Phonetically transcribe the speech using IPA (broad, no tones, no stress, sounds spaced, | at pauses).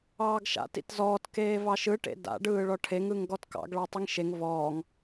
ɑː ɡ ʃ a̰ t ḭ t z ɔː t k eː v ɑ ʃ ɯ ʈ ḛ d a̰ ɖ ɯː ɭ ɔ ʈʰ e ŋ ɯ ŋ ɡ ɔ t k ɑ̰ ɡ ɭ ɑ tˤ i ŋ ʃ e ŋ v ɔː ŋ